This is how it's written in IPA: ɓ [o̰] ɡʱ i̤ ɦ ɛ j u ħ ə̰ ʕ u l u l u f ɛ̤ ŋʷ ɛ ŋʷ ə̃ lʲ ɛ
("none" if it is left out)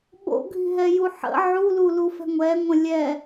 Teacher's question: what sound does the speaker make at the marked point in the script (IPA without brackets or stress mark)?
o̰